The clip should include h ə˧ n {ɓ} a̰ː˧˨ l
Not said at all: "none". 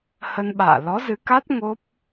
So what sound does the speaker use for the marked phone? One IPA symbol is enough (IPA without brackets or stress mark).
ɓ